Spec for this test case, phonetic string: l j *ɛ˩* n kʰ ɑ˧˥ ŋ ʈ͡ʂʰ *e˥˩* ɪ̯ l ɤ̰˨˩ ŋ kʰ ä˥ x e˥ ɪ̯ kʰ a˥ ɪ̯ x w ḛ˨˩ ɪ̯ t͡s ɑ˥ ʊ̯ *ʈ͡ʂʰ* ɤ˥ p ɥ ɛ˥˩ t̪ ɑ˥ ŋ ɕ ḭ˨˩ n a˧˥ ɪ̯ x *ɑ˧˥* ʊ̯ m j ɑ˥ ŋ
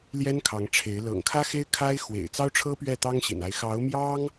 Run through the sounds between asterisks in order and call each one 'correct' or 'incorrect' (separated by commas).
incorrect, incorrect, correct, correct